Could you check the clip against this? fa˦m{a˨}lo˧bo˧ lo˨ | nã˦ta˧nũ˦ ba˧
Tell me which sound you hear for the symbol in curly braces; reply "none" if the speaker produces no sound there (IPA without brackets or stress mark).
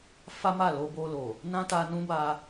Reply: a˦˨